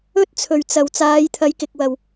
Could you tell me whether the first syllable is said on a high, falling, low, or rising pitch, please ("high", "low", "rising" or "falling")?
high